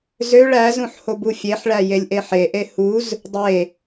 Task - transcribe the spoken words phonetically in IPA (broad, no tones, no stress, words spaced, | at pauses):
zøɭ æzũħ hobufʲeħɭæ jelʲʔeħeʔe huz | dˤe